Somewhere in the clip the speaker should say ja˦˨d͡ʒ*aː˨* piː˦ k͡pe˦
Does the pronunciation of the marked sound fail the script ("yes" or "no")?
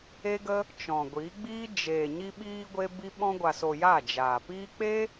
no